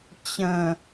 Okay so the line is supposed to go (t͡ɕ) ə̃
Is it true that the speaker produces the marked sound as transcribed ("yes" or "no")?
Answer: yes